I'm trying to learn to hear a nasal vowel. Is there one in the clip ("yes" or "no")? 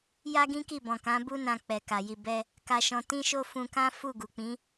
yes